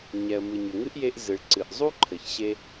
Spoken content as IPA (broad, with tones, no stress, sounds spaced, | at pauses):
ɲ ɛ˩ ə̯ m ɨ˩ ɲ ʏ˩ ŋ ɨ˥ ʔ j e˥ ʔ z ɨ˩ ɭ ǀ ɨ˩ ʔ zˤ u˥ ǃʰ ɘ˩ ç ɕ e˥